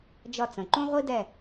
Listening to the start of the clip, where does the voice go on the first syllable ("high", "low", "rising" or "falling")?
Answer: falling